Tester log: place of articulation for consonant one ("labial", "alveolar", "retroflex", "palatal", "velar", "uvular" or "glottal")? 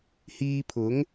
glottal